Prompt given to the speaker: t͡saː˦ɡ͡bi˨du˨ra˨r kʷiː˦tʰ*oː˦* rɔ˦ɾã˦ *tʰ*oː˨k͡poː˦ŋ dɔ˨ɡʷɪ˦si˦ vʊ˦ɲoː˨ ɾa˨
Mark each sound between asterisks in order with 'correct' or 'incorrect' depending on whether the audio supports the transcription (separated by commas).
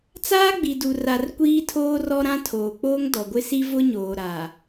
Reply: correct, correct